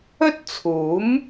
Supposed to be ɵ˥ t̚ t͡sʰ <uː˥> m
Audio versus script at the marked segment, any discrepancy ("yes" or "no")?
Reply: yes